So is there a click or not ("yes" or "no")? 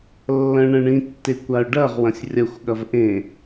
no